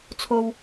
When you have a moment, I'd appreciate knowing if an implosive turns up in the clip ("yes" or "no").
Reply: no